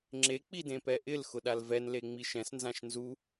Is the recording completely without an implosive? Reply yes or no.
no